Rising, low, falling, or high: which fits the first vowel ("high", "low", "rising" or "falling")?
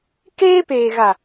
high